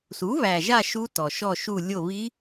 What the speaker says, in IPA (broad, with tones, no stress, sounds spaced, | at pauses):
s u˩˥ β æ˨˩ ʒ a˦˨ ʃ u˦˥ t ɔ˨˩ ʃ ɔ˦˨ ʃ u˦˨ lʲ o˦˨ β i˦˥